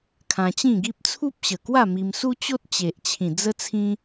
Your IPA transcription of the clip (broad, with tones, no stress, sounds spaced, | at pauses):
kʰ ã˧ t͡ɕ ĩ˥˧ ɡ i˦ p̚ t͡sʰ u˦ p̚ ɕ ə˨˩ k w a˥˧ m i˧ m s u˦ t͡ɕ o˦ t̚ t͡ɕ e˨ ʔ t͡ɕʰ ĩ˨˩ d͡z ə˦ t͡sʰ ĩ˦